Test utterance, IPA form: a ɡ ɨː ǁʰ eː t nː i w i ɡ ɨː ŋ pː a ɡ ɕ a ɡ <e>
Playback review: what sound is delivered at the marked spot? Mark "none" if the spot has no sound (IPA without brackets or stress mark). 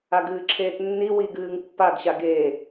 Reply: eː